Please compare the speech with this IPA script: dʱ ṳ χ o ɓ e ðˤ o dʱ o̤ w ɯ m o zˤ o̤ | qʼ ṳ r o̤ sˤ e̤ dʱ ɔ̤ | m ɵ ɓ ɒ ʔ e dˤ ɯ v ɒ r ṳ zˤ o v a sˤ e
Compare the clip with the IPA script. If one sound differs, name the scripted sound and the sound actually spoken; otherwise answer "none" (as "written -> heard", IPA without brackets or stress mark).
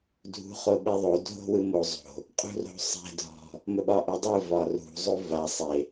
none